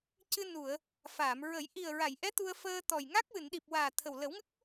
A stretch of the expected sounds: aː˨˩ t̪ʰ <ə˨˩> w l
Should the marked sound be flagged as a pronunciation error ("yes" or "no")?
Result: no